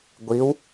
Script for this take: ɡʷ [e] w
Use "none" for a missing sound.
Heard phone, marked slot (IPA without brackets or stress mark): i